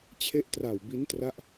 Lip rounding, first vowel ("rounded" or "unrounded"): unrounded